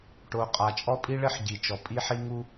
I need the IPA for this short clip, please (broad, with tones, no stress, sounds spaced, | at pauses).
ʈ o˨ qʼ a˨ t͡ʃʼ ɔ˦ pʼ i˦ ɭ ɘ˦ ħ ɟ i˨ t͡ʃ ɔ˨ pʼ i˦ ħ i˦ ŋ u˦